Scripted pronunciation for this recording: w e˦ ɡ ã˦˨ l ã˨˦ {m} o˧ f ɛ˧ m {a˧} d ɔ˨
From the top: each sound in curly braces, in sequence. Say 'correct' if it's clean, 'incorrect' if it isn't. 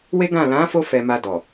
incorrect: f, correct

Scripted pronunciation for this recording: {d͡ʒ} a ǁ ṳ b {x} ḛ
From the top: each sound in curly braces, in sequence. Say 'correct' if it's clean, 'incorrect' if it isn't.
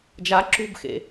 correct, correct

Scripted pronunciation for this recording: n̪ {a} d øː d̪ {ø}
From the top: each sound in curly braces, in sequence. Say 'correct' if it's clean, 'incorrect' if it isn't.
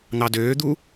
incorrect: ɑ, incorrect: u

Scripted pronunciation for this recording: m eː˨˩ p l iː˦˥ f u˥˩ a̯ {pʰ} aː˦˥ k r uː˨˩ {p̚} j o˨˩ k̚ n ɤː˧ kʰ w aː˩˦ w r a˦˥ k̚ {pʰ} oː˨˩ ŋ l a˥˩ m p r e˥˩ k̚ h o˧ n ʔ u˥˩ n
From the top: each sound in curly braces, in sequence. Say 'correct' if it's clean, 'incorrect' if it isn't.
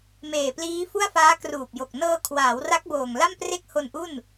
incorrect: f, correct, incorrect: b

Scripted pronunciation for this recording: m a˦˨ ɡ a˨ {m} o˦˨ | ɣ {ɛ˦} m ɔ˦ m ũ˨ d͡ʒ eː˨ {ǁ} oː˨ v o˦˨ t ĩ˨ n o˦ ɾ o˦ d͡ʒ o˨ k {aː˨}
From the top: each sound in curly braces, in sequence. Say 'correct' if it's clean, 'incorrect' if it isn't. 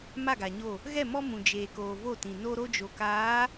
incorrect: ɲ, incorrect: ɛ˦˨, incorrect: k, incorrect: aː˨˦

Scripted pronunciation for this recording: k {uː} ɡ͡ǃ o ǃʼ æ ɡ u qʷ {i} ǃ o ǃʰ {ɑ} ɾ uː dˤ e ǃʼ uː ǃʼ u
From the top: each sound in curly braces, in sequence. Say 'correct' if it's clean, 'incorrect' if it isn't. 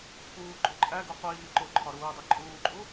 correct, incorrect: iː, incorrect: ɒ

